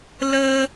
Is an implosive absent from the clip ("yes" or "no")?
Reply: yes